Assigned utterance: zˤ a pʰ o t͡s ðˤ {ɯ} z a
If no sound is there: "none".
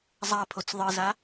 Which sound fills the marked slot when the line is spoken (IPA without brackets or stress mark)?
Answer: ɯ